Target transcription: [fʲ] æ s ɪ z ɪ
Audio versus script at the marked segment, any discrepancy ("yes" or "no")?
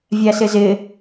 yes